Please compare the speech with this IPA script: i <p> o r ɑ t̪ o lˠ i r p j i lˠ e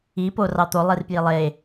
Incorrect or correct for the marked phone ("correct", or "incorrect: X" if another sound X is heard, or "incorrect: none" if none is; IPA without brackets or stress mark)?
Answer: correct